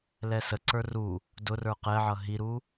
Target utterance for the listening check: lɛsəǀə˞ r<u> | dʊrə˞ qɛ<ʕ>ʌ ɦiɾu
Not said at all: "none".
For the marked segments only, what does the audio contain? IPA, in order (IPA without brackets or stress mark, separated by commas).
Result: u, ʕ